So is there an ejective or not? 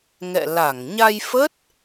no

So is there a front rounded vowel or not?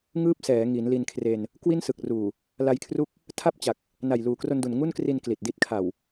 no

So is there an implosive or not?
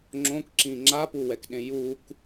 yes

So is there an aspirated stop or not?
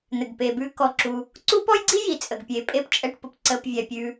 no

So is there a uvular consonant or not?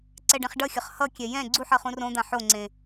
yes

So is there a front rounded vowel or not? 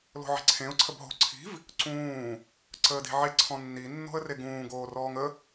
no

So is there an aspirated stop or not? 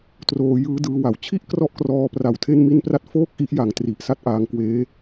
yes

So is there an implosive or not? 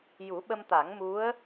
yes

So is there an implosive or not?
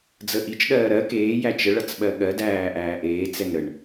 yes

